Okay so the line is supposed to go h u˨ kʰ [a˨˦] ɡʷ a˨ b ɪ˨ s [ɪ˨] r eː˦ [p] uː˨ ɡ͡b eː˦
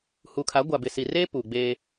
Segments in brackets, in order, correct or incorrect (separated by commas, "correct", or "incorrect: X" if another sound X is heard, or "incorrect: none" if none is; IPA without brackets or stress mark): correct, incorrect: i˨, correct